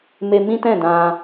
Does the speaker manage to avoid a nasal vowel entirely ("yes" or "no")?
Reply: no